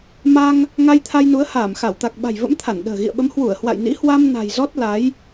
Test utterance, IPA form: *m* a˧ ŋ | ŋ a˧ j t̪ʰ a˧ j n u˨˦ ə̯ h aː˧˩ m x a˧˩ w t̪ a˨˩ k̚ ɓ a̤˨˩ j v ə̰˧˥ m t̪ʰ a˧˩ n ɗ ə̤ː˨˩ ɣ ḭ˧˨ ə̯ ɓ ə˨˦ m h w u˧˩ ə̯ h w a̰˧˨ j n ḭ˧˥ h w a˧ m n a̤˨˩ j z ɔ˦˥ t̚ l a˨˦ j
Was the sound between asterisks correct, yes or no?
yes